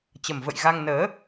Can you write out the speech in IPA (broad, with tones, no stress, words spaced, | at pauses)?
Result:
t͡ɕə˨˩mvə̰˧˨j ɣa˧ŋnəː˨˦